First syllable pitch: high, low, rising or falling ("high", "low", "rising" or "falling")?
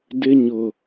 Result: high